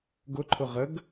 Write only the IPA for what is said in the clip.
ɡ ʊ ǃʰ ʊ ʁ ə ɡ

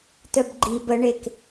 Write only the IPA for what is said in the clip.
t œ b ɡ͡ǃ i b ə ɳ e k

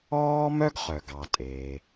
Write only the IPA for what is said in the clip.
ɔː˥ m œ˥ ɡ χ œ˩ ɡ ɑ˩ tʼ e˩

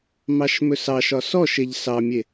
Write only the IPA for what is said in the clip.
m ɑ ʃ m ɵ s ɑ ʃ ɒ s ɔ ʃ e ʎ s ɑ mʲ e

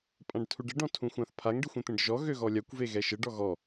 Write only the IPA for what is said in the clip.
pʼ ã ɖ tʰ u ɖ ə ɖ ɔ̃ tʰ ũ xʷ ã θ pʰ a ŋ ɖ e xʷ ẽ t̪ ẽ ɖ ʒ ɔ ɣ ø ɣ ɔ lʲ a kʷ v e ɣ ɛ ʃ ə ɖ ɔ ɣ ɔ

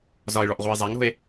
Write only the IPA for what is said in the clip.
z ɒ e̯ ɭ ɔ ʔ ʁʷ a e̯ zˤ a ŋ ɾ o̤ e̯

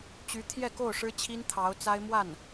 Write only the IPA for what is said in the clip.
t͡ɕ y˧˥ t̪ʰ j ɛ˥˧ k o˥˩ ʊ̯ ʂ ɻ̩˥ t͡ɕʰ i˥ n t̪ʰ ɑ˧˥ ʊ̯ t͡s a˥ ɪ̯ m w a˥˩ n

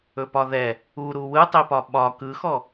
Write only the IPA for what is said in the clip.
ɵ p ɒ ð ɛ | u ɾ u w ɯ tˤ e p ɒ ɓ ɒ k ɯ x ɔ

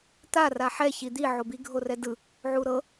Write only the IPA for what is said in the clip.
t̪ a r a ħ ɛ ç i d̪ i ʕ o b i ɡʱ o r ɛ d ɯ | ʕ u ɾ ɤ

